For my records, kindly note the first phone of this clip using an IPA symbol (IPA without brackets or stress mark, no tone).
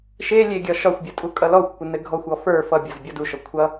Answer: ʃ